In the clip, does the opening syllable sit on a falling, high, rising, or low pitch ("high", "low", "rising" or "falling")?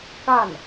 falling